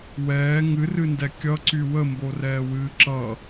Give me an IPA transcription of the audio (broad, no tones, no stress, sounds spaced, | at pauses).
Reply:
w ɛː ŋ ɨ r ɨ n d ɛ kʲ ʌ ǀ y w ə m b o r ɛː w ɨː ǁ ʌ